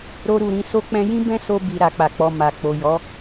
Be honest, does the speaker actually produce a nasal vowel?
yes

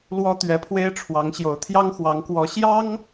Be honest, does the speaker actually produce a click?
no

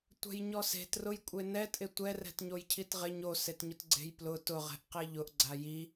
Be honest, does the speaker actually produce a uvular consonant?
yes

